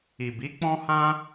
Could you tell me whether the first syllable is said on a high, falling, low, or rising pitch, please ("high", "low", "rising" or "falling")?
low